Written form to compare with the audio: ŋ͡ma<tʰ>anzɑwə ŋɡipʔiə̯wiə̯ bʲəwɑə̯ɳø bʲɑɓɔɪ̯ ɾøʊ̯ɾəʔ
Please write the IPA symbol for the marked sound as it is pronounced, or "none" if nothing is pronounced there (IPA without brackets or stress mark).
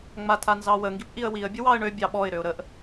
tʰ